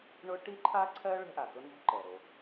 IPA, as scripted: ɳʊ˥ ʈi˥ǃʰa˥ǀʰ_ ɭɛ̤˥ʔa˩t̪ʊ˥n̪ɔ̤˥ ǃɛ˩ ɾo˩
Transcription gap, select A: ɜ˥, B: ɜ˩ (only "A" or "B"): A